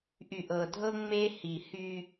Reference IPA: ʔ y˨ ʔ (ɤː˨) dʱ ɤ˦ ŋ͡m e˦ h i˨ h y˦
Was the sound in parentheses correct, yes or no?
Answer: no